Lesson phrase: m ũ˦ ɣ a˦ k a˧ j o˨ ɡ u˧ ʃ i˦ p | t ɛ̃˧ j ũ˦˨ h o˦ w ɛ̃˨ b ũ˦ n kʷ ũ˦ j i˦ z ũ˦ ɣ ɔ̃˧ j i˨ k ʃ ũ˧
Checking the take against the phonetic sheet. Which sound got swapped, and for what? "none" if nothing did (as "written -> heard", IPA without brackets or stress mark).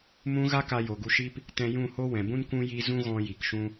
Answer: none